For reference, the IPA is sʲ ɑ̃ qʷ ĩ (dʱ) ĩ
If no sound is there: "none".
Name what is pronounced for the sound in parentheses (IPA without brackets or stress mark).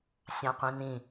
n